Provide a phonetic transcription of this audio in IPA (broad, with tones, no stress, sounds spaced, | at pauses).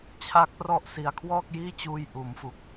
t͡ɕʰ a˦˥ k̚ r ɔ˦˥ ʔ s i˨˩ a̯ kʰ w ɔː˥˩ k̚ j iː˥˩ t͡ɕ uː˧ j ʔ uː˩˦ m f u˨˩ k̚